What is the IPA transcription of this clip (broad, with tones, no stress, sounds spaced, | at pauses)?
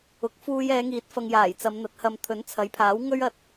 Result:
ʊ˨˥ k̚ f uː˧ j ɛː˨˧ ŋ iː˨˥ t̚ f ɐ˨ ŋ j aː˨˩ j t͡s ɐ˨˧ m n̪ ɐ˨ t̚ h ɐ˧ m t̪ʰ ɵ˨˥ n t͡sʰ ɐ˨˥ j pʰ aː˨˥ w ŋ ɵ˥ ɥ ɐ˧ t̚